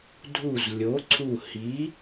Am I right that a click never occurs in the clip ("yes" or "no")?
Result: no